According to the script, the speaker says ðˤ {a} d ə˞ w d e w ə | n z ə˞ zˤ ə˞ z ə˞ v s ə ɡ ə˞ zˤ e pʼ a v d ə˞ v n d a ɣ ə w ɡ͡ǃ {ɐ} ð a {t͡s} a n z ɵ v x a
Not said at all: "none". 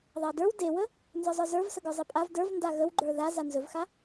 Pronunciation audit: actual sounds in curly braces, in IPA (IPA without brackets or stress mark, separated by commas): a, ə˞, z